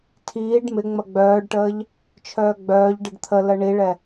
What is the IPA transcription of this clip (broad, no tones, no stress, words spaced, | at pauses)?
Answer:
tʰiːɖ mɪ ŋ͡mɐɡ͡bœːɖʈəːʎ | t͡ʃʰœːɡ͡bœːʎ ɖəɖt̪ʰələ ɳiɭɛ